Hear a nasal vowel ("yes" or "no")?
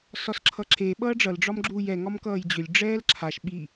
no